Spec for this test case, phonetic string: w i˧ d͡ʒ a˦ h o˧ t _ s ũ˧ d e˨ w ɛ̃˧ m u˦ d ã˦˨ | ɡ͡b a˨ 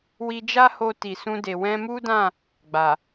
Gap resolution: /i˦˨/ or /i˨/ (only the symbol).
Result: i˨